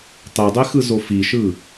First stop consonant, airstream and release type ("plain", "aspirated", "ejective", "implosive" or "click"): plain